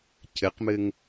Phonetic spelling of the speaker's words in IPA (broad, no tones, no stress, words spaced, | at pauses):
cʰɘqmɘŋ